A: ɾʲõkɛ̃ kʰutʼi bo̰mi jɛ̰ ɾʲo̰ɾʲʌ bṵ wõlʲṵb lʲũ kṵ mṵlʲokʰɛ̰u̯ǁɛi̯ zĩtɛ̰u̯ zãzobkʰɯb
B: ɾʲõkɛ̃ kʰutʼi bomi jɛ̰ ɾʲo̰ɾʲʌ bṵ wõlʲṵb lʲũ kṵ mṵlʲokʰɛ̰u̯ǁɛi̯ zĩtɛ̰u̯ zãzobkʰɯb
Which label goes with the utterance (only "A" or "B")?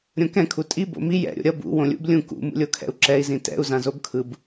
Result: A